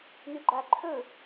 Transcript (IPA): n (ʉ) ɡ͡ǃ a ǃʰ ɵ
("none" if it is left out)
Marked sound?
ʉ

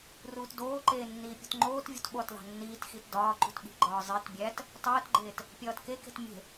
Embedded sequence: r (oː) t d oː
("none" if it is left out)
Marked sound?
uː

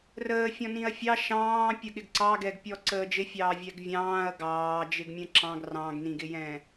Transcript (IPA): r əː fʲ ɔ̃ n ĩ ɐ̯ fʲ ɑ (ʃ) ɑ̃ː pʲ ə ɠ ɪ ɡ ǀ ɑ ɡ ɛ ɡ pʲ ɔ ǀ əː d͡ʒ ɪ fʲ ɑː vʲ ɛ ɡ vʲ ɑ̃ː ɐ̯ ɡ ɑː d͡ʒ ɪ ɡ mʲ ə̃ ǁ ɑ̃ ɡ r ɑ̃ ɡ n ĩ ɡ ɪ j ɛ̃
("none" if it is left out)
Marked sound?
ʃ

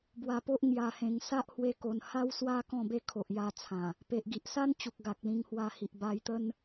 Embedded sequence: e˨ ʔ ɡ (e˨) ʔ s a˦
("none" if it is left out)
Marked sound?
i˨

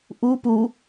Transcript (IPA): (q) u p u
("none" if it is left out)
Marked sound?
ʔ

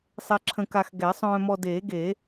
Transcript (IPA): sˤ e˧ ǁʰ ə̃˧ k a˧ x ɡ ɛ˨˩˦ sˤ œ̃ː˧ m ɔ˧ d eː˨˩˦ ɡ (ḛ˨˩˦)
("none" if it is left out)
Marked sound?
e˨˩˦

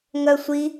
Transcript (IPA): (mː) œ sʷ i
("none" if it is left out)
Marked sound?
ŋ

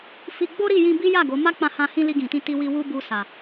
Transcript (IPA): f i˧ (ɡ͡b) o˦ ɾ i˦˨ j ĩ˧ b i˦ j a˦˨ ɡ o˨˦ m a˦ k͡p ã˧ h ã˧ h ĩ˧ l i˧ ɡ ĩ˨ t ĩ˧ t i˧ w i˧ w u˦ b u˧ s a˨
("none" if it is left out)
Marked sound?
ɡ͡b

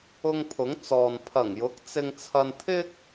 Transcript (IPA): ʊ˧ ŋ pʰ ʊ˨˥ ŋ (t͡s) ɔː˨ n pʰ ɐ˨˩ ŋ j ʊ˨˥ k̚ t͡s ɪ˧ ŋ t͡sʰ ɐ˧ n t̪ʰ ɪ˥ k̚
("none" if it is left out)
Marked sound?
t͡s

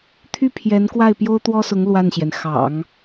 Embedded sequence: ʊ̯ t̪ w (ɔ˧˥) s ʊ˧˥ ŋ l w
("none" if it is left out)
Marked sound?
ɔ˥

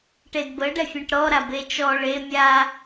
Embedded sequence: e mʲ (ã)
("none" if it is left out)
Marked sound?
a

